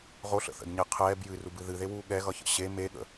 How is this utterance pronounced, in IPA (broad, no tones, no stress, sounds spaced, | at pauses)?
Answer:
ʁ o ɬ ə̰ θ ə̰ d ɲ e qʰ ɛː b j ɨ r u b ɨ ð ɨ ð e w uː ɠ ɛ ɣ ʌ ç ə̰ ɕ e m e ɠ ə̰